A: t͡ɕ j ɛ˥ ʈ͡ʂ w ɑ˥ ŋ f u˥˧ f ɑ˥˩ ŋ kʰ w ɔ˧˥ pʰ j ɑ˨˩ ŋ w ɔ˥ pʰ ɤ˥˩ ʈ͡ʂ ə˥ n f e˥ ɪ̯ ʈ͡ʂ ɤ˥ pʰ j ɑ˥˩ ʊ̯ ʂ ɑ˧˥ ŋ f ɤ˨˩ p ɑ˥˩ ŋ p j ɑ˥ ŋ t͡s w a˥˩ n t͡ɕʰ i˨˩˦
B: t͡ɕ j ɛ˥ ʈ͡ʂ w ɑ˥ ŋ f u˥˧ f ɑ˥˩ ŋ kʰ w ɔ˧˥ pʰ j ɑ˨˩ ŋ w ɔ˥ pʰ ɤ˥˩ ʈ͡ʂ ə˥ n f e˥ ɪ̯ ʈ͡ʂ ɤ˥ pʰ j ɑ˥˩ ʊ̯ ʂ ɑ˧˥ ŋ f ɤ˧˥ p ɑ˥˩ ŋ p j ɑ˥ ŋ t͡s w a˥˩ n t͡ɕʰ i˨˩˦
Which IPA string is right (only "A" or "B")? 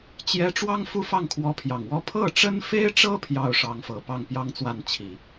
A